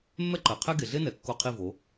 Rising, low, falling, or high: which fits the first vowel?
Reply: high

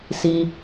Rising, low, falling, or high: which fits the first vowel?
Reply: low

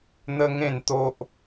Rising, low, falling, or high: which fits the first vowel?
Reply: high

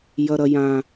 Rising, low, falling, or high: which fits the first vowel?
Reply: high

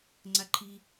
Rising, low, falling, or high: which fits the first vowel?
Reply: high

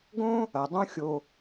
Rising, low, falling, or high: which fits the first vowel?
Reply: high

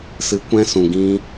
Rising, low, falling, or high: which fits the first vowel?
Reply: rising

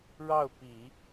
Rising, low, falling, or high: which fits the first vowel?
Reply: falling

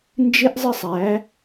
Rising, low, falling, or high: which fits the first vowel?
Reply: high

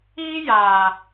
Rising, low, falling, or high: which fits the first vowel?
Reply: high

